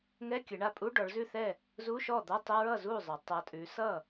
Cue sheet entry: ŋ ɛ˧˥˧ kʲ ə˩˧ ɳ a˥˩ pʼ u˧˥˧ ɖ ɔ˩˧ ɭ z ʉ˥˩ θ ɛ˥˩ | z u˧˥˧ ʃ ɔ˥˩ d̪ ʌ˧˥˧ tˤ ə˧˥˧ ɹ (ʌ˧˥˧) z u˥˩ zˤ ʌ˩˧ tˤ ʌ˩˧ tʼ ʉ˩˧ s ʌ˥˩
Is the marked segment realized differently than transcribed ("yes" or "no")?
yes